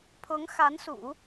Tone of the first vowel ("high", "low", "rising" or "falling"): rising